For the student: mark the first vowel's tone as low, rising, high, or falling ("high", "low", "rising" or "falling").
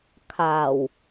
low